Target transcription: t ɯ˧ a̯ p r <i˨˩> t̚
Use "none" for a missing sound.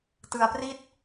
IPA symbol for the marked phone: i˥˩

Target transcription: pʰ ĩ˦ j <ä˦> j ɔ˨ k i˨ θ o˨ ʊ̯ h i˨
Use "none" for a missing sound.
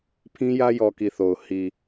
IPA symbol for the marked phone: ä˦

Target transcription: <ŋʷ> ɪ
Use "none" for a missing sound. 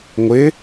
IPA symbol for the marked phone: ŋʷ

